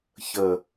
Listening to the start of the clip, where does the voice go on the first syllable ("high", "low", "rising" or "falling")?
low